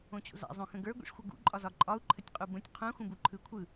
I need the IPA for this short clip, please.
õ t͡ɕ o̰ z a̰ zˤ õ x ə̃ ɡ ə˞ ɡʷ ḭ ʂ xʷ ə ɡ ṵ ǃʼ ɒ z ɒ ǃʼ ɒ u̯ ǃʰ ə tʲ qʼ u b ə̃ tʲ qʰ ũ x ũ b u ǃʰ ɯ kʷʰ ɯ

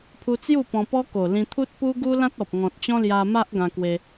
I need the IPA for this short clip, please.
pʰ u˧ t͡s j u˥˧ p ɔ̃˧ p ɔ˦ k o˨˩ l ĩ˧ t̪ʰ u˦ t̚ p u˦ ɡ u˦ l ã˦ t̚ ɔ˨ p̚ ŋ ɔ̃˨ t̚ t͡ɕ ɔ̃˦ l j a˧ m a˦ ʔ ɡ ã˧ k w e˧

